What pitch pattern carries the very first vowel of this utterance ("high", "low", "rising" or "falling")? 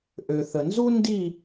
low